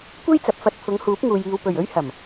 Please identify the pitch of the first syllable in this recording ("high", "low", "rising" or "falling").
high